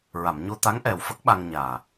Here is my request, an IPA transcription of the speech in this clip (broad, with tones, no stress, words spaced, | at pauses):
ɹa˨˩˨mɲo˧t̪a˧˥ŋ ʔɛ˨˩wfə˦˥k̚ ɓa˧ŋɲaː˨˩